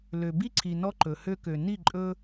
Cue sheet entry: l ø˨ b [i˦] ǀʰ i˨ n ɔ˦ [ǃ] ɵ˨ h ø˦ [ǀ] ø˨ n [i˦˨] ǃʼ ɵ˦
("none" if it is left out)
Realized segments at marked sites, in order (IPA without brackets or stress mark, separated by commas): i˦, ǃ, k, i˦˨